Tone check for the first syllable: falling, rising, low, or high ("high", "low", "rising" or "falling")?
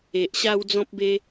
low